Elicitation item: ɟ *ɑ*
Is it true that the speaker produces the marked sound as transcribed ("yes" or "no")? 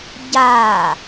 no